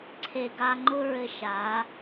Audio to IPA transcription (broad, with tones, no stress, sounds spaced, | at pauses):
ǀʰ e˨ ɡ a˧ ŋ͡ǃ ʊ˦ ɹ ɘ˧ ʃ a˨˦